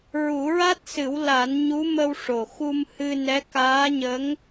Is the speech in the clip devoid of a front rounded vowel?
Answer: yes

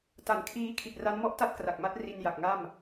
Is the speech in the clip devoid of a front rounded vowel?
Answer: yes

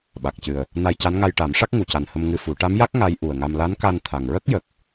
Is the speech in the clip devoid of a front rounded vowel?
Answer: yes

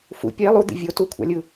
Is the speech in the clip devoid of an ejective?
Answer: yes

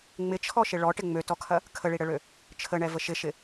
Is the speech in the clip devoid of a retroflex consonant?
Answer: no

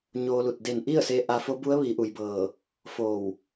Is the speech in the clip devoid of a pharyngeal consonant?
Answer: yes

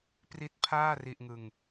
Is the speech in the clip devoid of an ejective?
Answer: yes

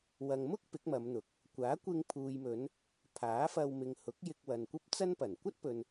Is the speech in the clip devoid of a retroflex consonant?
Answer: yes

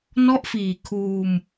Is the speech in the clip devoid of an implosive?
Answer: yes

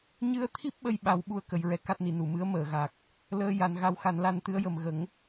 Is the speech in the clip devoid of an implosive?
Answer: no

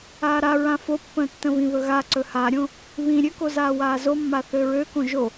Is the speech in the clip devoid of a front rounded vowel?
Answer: no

